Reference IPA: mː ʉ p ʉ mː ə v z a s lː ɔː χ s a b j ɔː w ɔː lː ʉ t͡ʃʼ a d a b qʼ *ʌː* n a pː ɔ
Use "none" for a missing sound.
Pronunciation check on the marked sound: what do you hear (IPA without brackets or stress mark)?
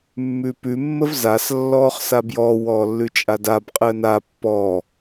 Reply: əː